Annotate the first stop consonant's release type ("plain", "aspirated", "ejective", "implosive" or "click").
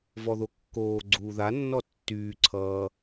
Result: plain